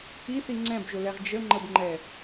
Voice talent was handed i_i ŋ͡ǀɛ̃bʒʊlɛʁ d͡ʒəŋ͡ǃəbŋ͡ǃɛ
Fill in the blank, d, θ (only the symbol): θ